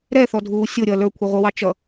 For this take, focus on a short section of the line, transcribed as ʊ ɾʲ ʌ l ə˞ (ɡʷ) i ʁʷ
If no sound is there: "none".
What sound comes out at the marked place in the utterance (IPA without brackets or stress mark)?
kʷʰ